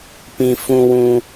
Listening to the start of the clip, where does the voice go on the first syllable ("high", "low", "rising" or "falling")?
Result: low